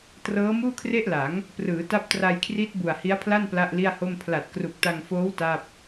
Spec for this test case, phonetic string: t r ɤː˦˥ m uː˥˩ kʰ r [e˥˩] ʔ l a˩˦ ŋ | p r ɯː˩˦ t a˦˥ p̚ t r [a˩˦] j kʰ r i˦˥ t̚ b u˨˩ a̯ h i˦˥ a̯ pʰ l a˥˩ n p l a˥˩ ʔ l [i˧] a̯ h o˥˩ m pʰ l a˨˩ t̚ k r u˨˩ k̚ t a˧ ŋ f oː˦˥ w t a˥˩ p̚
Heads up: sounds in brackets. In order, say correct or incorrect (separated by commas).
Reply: correct, incorrect, incorrect